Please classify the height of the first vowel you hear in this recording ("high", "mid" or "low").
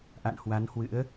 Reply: low